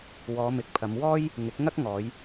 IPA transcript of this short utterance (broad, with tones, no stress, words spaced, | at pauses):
wɔː˨˧ mɪ˨˥k̚pʰɐ˨˧m wɔː˥j | ŋɪ˨˥k̚ŋɐ˥k̚ŋɔː˨˧j